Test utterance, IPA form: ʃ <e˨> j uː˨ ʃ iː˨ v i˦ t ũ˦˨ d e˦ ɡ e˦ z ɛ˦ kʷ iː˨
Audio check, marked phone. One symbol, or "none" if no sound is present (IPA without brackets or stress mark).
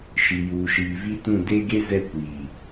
i˨